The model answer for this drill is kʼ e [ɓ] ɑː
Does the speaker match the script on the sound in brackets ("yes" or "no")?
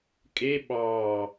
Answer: yes